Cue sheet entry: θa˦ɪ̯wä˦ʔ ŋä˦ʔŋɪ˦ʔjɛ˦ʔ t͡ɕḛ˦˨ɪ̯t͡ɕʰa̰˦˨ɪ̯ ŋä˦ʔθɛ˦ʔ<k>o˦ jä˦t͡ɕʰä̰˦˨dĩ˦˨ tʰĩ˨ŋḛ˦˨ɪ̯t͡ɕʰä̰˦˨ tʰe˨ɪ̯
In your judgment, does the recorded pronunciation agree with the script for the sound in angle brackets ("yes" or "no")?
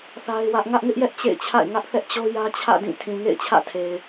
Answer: no